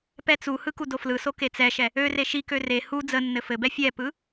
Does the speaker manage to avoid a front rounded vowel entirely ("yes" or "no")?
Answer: no